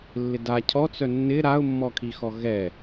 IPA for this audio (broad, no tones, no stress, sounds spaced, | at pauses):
lː ɪ d a cʰ ɔ t͡s œ nː ɪ ɾ a ʊ̯ mː ɔ kʰ i x ɔ ɣ ɛ